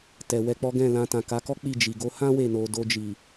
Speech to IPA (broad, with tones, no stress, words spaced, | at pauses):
tɛ˨wɛ˧k͡pɔ˦ ɡɛ̃˦˨lã˧ tã˨ka˨˦kɔ˦ k͡pi˦˨d͡ʒi˨ ɡo˧hã˦ we˦˨no˧ do˧d͡ʒi˨